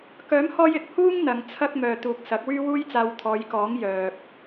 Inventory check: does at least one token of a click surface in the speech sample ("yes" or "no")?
no